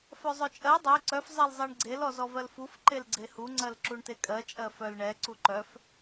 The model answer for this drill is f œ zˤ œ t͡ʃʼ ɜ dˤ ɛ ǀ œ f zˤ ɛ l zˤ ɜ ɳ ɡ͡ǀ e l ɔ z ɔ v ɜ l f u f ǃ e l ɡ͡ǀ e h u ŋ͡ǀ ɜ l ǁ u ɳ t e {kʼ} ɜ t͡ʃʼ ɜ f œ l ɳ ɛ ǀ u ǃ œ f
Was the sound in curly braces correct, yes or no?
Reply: yes